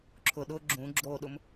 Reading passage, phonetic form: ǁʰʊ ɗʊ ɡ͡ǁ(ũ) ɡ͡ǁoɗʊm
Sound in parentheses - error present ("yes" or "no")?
no